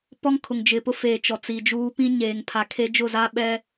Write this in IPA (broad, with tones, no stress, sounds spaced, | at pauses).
p ɔ˦ ŋ kʰ ʊ˨ ŋ d͡ʒ ɪ˨ p ʊ˦ f eː˨ t͡ʃ ɔ˨ t͡s i˨ d͡ʒ uː˦ p ĩ˦ ɲ eː˨ ŋ pʰ a˨ kʰ e˦ d͡ʒ ʊ˦˨ z a˦ ɓ ɛ˦